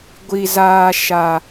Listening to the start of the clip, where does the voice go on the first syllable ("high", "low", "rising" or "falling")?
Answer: high